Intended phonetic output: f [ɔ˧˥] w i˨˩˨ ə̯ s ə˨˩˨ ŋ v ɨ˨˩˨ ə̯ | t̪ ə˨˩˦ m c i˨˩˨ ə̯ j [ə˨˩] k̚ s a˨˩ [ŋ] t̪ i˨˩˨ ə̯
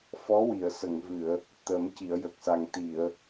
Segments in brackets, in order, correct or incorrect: correct, correct, correct

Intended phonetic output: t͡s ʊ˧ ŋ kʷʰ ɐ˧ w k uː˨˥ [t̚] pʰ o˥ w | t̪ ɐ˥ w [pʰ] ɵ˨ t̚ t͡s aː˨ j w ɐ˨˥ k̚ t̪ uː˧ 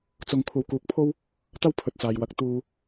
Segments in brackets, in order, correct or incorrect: incorrect: k̚, correct

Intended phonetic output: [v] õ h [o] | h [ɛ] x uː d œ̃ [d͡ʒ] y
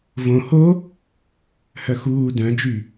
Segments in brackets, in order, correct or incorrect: correct, correct, incorrect: œ, correct

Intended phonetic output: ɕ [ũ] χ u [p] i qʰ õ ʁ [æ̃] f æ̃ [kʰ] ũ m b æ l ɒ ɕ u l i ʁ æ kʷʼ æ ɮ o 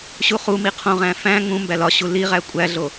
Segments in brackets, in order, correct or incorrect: incorrect: u, incorrect: m, correct, incorrect: ŋ

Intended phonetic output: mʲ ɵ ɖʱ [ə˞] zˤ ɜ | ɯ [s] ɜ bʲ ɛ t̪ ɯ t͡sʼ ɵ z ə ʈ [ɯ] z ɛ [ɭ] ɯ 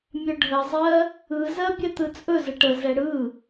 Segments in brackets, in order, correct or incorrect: incorrect: ə, incorrect: z, incorrect: ə, incorrect: ɽ

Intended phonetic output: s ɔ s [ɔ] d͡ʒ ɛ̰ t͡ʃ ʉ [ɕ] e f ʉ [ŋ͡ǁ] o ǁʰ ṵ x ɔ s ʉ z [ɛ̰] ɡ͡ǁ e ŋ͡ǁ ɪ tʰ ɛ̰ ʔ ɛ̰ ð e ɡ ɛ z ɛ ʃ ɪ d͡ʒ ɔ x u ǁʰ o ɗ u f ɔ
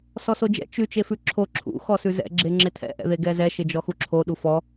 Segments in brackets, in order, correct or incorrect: incorrect: o, incorrect: t͡ʃ, incorrect: ǁʰ, correct

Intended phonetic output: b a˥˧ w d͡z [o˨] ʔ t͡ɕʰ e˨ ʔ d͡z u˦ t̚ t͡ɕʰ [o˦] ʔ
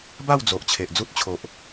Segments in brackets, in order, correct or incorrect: correct, incorrect: o˨

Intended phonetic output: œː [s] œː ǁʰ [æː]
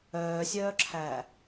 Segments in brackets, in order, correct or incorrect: incorrect: sʲ, correct

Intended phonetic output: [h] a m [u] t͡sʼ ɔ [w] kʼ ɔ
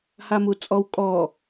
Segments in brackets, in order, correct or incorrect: correct, correct, correct

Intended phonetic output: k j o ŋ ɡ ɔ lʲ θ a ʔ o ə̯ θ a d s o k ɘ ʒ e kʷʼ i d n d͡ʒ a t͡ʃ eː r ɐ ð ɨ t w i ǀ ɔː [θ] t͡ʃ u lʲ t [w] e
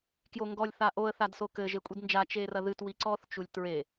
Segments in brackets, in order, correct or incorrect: correct, incorrect: ɹ

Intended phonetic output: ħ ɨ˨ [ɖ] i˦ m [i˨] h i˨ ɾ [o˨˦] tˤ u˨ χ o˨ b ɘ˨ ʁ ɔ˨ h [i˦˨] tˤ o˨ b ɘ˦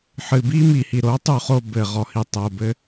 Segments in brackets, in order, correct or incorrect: incorrect: b, correct, correct, incorrect: i˨

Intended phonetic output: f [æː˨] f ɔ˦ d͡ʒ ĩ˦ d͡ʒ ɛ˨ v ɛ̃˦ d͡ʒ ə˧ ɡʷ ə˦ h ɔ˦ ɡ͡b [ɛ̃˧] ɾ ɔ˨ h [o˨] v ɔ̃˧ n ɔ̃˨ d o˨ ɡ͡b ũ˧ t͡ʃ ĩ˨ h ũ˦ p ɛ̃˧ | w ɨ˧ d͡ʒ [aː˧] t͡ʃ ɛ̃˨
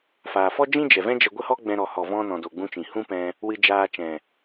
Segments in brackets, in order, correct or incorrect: incorrect: aː˨, correct, incorrect: ɔ˨, correct

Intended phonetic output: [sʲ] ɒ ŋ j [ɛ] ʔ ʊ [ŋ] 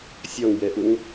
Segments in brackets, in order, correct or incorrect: correct, correct, correct

